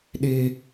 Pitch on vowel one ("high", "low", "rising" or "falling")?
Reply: high